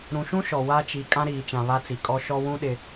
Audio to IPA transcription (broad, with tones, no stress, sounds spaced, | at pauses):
ɾ ũ˨ ʃ ũ˦ ʃ ɔ˨ w a˦ t͡ʃ i˨˦ kʼ ã˦ ɾ iː˨ t͡ʃ ã˨ β a˦ t͡s i˨ kʼ ɔ˦ ʃ ɔ˦ w ũ˦ ɗ ɪ˨